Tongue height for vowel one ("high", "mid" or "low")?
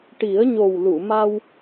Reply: high